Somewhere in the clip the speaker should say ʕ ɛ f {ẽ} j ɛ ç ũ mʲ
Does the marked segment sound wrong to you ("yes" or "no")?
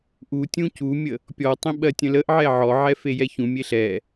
yes